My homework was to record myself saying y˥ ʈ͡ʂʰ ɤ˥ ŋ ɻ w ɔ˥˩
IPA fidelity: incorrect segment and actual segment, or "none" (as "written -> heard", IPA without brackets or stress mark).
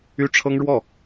none